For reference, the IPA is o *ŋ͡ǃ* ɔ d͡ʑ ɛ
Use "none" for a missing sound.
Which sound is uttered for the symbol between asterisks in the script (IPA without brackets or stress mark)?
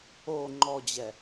ŋ͡ǃ